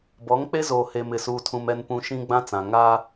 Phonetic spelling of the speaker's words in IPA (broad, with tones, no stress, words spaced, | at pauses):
bɔ˨˦ŋk͡pe˦zoː˨ he˨mɪ˨suː˨tʰũ˨m ɛ˨npũ˨ ʃĩ˦ɡ͡bã˦t͡sã˨ ŋa˦